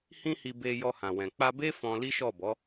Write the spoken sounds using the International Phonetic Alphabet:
h ĩ˦ h i˧ b e˧ j ɔ˧ h ã˨ w ɛ̃˨ k͡p a˧ b e˦ f ɔ̃˧ l i˦ ʃ ɔ˦˨ b ɔ˨˦

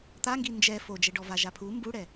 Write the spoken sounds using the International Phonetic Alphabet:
t̪ a ŋ ɡ i n d͡ʒ ɛ f o d͡ʒ ɛ ɖ ɔ v a ʒ a pʰ u m b u ɽ ɛ

